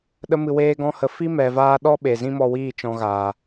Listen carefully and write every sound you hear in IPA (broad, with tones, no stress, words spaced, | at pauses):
ɗə˧mɨ˨ weː˧ɡɔ̃˧hə˨ fi˦mɛ˨vaː˧ɗɔ˦ ɓe˨zĩ˦mɔ˧wiː˦˨ t͡ʃɔ̃˧ɣaː˨